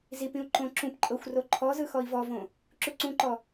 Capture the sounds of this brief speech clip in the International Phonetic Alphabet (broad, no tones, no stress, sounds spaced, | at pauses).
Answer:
z i p ĩ u̯ ǃ õ ǁ ũ p ǃʼ ɤ xʷ r o ǃʰ ɔ z ɯ x ɔ i̯ v ɔ v õ | ǁ u ǀ ũ ǃ ɔ